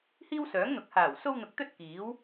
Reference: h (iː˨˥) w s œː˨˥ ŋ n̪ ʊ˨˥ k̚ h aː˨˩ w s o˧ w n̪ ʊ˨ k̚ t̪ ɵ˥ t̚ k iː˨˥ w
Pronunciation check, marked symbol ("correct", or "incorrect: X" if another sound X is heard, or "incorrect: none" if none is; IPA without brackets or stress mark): incorrect: iː˥